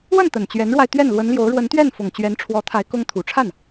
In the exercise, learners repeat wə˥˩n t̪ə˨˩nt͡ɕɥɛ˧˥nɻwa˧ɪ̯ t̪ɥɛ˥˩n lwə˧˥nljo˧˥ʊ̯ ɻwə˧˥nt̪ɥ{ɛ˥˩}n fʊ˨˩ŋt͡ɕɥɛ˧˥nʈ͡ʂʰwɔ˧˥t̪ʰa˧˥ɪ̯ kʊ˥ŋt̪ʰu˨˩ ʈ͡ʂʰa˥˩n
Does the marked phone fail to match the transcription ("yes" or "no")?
no